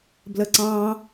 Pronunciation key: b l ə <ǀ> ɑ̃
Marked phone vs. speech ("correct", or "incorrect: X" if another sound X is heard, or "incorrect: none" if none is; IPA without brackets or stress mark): correct